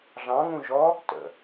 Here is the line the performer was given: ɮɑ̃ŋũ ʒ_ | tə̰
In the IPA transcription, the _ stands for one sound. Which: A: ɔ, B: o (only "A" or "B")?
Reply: A